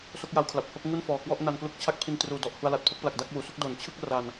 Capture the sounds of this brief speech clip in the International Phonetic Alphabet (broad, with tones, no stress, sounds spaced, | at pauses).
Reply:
s o˥˩ k̚ j a˧ w kʰ l a˨˩ p̚ h o˥˩ k̚ ŋ u˥˩ n f ɔː˨˩ k w ɔ˥˩ ʔ n a˧ n k l u˦˥ k̚ t͡ɕʰ a˥˩ k̚ pʰ i˧ n t r uː˨˩ d ɔ˨˩ ʔ h u˧ a̯ l a˨˩ t̚ pʰ o˥˩ k̚ p l a˨˩ k̚ d a˥˩ k̚ w uː˩˦ s u˥˩ k̚ d o˩˦ n t͡ɕʰ ɯ˥˩ k̚ r a˨˩ n